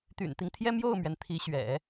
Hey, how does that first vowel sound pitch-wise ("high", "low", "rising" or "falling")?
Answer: low